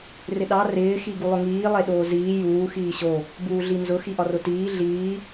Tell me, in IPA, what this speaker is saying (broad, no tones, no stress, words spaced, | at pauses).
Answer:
rɪɗɑ rɪː xiɡulˠʊŋiː lˠeɗoːziː juː xiːɕo | buːɮinzʊ xiʔɒrʊtiː ɮiː